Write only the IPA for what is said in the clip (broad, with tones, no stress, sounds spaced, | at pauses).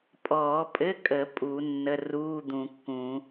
pʼ ɔː˨˩˦ pʼ ɘ˧˥˧ kʼ ə˨˩˦ pʼ u˨˩˦ nː ə˧˥˧ r uː˧˥˧ d̪ ũ˨˩˦ kː ũː˨˩˦